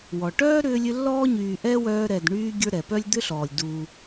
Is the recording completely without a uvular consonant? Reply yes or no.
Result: yes